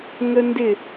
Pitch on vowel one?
high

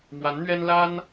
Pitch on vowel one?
rising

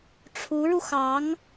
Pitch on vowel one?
rising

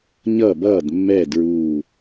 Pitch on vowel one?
falling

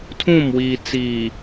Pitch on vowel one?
falling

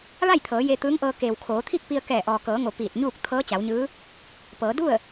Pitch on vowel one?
falling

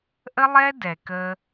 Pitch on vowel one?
high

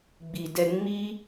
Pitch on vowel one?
low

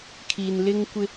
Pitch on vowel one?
low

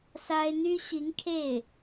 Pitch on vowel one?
high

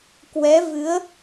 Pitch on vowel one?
rising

